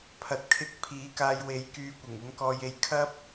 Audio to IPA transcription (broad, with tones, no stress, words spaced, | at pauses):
pʰɐ˨t̚kʰɪ˧k̚ pʰiː˨˥kaː˧jwe˨˥j kyː˧kʷɪ˨˩ŋʊ˨˥ŋkɔː˧j e˧jkʰɐ˥p̚